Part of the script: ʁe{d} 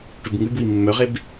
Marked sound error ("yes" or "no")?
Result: yes